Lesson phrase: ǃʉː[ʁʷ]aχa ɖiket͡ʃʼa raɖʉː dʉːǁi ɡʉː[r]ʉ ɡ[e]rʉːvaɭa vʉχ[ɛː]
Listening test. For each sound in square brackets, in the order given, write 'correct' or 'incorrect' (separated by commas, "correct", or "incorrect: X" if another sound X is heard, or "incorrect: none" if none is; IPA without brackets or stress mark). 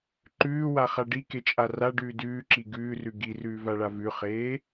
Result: incorrect: w, correct, incorrect: i, incorrect: eː